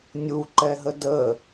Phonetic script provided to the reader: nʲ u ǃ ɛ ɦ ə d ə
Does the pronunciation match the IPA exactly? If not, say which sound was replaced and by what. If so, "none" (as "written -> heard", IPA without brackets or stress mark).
none